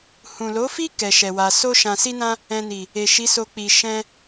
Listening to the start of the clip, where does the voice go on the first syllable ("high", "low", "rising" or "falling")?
low